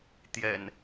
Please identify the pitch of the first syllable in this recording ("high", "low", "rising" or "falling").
low